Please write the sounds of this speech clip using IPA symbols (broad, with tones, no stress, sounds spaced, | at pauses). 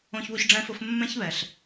õ˧ ç β o˧ ç ɖ͡ʐ ɛ̃˥ f ʊ˥ f mː ɛ̃˥ ç β ɛ˩ ɬ